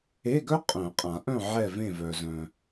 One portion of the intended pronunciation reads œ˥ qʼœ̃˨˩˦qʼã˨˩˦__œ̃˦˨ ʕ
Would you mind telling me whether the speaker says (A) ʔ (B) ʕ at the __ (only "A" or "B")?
A